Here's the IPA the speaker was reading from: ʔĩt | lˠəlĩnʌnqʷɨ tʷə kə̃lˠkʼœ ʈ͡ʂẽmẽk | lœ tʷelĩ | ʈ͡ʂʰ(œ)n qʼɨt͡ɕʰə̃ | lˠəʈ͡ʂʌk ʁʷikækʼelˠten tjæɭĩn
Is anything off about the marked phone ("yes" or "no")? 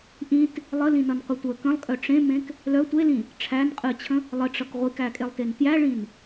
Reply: yes